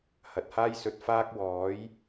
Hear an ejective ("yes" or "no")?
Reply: no